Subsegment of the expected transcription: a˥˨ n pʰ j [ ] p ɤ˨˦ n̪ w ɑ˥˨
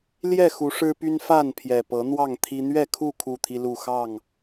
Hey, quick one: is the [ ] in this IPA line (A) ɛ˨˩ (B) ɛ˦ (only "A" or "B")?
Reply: A